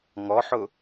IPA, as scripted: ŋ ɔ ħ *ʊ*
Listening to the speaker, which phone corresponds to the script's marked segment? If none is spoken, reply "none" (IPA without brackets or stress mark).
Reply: ʊ